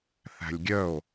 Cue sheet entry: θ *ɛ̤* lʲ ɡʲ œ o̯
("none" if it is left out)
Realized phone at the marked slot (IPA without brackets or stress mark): æ̤